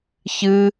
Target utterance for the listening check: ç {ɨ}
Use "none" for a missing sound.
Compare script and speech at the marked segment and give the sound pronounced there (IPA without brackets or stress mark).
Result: ɨ